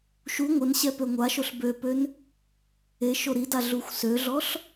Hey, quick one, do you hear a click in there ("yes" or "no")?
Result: no